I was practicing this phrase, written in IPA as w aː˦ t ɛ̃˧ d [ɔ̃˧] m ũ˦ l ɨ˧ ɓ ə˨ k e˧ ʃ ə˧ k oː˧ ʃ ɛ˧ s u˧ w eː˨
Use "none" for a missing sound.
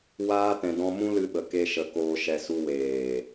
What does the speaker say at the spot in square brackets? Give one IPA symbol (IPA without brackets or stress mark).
ɔ̃˧